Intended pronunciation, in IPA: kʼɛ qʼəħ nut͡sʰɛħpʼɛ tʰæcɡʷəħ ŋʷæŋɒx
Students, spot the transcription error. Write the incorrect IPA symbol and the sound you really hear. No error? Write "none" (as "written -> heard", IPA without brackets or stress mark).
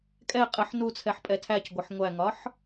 x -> ħ